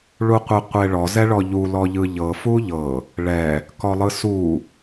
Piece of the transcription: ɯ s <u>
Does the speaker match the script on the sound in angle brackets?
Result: yes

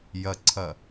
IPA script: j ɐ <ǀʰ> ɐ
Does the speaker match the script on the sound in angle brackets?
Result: yes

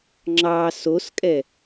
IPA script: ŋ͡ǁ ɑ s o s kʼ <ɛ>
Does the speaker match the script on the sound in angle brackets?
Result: yes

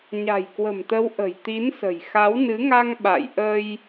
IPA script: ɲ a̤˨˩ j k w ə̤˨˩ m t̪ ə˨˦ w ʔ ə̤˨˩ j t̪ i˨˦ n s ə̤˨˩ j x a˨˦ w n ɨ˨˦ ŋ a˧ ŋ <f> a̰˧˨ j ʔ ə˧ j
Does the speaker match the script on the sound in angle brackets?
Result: no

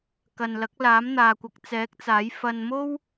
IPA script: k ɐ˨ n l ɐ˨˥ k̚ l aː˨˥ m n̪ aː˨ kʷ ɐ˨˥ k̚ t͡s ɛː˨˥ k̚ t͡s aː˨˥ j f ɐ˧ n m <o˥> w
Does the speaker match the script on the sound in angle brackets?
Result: yes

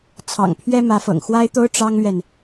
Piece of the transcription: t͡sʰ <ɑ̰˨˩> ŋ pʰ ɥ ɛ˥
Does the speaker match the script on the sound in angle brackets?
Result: yes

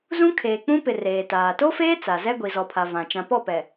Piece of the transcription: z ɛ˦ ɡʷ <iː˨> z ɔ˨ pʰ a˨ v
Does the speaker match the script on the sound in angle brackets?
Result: no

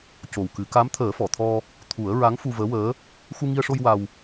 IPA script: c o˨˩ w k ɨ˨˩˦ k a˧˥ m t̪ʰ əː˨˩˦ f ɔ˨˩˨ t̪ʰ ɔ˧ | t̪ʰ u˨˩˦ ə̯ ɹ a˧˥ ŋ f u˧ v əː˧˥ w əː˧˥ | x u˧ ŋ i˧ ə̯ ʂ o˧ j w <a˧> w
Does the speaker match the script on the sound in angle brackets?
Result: yes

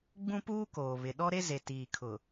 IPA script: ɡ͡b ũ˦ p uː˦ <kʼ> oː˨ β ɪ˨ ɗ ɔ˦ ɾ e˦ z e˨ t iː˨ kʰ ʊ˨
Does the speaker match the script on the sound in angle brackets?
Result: no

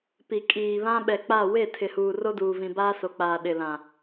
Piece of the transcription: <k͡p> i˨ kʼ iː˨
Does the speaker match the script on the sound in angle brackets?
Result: no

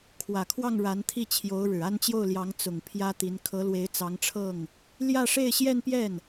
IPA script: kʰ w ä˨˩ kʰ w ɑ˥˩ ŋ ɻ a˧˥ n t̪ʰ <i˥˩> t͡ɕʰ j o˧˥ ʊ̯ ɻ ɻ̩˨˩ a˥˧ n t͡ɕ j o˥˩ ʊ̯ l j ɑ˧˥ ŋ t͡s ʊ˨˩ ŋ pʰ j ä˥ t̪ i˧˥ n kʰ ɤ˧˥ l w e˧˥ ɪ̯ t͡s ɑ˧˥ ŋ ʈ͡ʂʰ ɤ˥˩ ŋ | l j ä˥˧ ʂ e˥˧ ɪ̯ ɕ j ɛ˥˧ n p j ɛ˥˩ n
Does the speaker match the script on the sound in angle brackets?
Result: yes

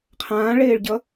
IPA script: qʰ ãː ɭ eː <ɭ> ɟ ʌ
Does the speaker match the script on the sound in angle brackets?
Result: yes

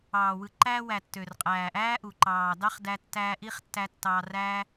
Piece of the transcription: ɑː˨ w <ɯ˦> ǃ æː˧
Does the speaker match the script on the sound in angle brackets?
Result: no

